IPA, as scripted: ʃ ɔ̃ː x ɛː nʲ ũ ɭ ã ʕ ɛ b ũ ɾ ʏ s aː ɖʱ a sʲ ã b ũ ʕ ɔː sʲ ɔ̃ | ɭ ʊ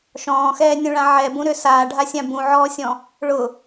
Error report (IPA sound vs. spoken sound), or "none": none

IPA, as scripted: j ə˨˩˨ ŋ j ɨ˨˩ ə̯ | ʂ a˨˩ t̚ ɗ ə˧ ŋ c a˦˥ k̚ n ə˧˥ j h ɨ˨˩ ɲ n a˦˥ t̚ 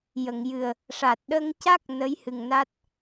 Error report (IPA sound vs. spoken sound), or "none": ɲ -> ŋ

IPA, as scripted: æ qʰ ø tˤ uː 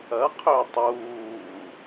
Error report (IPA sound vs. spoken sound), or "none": æ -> ɐ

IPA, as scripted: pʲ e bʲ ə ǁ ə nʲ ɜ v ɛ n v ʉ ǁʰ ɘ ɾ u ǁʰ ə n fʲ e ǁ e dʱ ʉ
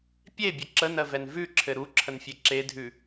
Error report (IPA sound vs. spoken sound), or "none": nʲ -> n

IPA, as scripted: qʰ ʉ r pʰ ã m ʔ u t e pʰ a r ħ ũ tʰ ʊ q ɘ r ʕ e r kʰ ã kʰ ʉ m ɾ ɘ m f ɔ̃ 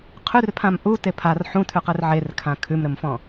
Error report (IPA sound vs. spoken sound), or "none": ʊ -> ʉ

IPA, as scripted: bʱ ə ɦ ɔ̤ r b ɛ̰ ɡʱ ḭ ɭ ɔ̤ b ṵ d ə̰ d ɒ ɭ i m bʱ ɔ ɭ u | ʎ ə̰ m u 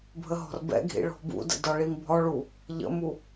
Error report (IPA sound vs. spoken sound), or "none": none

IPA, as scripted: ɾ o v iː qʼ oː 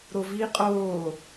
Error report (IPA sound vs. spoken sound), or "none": none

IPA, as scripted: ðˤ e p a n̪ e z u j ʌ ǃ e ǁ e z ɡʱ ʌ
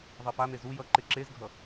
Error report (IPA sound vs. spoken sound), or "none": none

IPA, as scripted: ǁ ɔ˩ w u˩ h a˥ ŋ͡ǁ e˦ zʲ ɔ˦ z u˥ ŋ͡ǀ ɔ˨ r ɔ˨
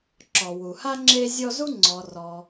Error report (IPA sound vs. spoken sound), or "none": none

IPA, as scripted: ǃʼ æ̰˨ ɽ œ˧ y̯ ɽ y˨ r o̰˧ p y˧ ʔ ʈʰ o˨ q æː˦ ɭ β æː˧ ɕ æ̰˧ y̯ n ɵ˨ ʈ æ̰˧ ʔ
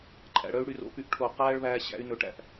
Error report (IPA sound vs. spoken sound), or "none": none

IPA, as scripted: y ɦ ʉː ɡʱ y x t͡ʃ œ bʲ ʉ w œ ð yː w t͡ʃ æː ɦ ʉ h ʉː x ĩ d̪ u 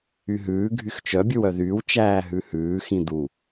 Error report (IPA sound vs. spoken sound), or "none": none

